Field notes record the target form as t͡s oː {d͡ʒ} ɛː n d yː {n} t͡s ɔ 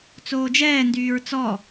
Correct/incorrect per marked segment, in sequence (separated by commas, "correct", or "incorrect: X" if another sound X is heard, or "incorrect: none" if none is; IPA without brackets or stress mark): correct, incorrect: ɹ